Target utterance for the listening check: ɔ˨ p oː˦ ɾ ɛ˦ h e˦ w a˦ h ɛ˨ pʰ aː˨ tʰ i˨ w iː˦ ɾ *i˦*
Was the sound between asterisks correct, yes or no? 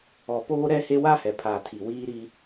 yes